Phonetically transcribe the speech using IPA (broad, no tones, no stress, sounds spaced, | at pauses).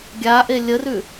ɡʲ a ʔ e lʲ ə r ʉ